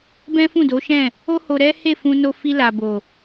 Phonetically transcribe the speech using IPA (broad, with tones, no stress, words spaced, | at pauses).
bɛ̃˦fũ˦˨do˨˦ʃɛ̃˦˨ | o˦ho˧ ɾɛ˦ he˦˨fũ˧no˧ fi˧la˨bo˨